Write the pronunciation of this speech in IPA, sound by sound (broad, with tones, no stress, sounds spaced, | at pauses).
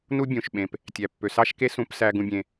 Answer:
n u˥ bʲ ũ˩ ʃ ɓ ẽ˩ p | tʲ æ˩ pː ø˩ s ɑ˥ ʃ k e˥ s ũ˧ p s æ˧ ɡ ũ˧ bʲ ẽ˩